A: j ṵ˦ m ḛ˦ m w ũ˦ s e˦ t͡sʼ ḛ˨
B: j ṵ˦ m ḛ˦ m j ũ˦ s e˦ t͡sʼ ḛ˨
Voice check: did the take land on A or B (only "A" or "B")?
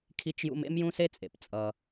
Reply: B